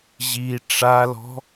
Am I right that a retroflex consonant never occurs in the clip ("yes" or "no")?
no